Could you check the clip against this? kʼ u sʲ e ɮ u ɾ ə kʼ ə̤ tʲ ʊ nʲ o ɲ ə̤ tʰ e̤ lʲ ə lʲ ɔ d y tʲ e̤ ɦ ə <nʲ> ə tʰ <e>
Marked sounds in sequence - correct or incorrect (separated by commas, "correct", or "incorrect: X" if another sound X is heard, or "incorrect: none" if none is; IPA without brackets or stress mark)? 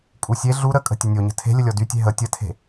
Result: incorrect: tʲ, incorrect: e̤